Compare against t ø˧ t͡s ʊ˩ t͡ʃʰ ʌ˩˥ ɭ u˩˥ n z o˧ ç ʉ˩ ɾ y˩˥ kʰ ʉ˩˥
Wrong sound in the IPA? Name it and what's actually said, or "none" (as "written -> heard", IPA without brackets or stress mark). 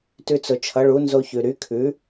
ø˧ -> ʉ˧